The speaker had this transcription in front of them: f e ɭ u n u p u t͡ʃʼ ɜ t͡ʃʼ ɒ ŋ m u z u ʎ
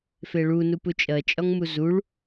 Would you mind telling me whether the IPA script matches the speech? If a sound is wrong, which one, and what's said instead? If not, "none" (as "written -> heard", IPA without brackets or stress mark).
ʎ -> ɭ